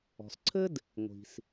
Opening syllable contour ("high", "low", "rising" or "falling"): low